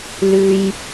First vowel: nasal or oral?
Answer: oral